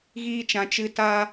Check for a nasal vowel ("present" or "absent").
present